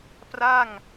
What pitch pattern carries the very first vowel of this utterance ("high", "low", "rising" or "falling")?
falling